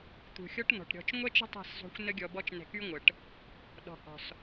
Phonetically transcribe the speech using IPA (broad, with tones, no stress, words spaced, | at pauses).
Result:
t̪ṳ˨xʲɔ˦ʈn̪ɔ̤˨ʈɾʲɔ̤˧t͡ʃ ŋʷɛ˦t͡ʃə̤˦ tˤɛ̤˦˨szˤṳ˧xʷ nə˦ɡʲɔ˧bɔ˦t͡ʃ nɛ̤˧ky˦ŋʷə˨ʈ | ɗɔ̤˨hɔ̤˨s